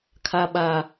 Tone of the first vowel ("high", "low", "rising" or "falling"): high